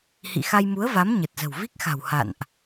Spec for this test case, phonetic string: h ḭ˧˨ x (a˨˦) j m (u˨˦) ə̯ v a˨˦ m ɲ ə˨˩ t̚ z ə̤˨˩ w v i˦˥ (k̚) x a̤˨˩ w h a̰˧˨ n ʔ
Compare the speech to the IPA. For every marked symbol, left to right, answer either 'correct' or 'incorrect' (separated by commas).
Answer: incorrect, correct, correct